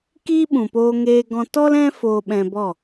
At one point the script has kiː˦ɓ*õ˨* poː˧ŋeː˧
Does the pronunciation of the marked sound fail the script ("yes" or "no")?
yes